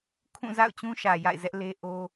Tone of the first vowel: falling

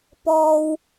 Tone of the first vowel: low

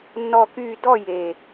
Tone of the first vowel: falling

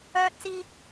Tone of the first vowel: high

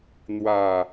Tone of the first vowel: low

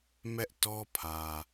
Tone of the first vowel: high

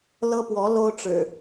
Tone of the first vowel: high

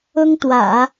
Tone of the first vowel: high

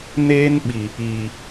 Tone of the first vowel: high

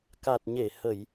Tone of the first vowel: low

